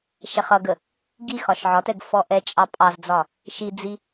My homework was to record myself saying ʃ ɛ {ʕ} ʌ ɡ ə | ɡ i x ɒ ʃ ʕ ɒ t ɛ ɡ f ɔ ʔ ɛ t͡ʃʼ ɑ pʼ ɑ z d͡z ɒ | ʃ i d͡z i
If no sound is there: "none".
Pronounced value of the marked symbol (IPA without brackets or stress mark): χ